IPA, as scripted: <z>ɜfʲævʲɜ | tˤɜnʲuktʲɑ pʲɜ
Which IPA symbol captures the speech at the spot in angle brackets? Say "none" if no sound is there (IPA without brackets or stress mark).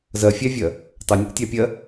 z